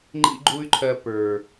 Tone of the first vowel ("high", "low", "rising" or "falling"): high